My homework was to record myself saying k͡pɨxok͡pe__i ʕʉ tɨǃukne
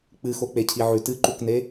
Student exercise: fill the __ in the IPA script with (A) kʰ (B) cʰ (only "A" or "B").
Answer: B